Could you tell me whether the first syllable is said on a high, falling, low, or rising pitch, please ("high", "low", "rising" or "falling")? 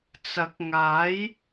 rising